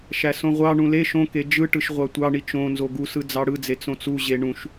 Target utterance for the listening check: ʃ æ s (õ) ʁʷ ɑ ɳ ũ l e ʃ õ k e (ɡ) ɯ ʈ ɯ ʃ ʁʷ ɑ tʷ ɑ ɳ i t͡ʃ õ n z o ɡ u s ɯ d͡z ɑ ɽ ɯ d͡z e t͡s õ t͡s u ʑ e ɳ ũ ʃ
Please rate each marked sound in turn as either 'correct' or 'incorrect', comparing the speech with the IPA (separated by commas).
correct, incorrect